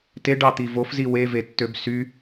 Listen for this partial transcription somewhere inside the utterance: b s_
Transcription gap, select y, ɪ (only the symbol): y